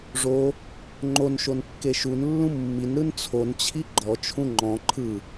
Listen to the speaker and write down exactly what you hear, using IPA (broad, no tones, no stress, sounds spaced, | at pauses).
ʐ o | ŋ͡ǃ o n ʃ o n kː e ʃ u n lː ũ mː i n ɾ ɯ n t͡sʰ o n t͡ɕʰ i ɡ͡ǃ ɔ t͡ʃʰ ũ ŋ͡ǃ ɔ̃ ǃʰ ɯ